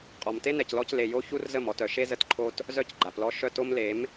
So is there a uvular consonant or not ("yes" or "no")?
yes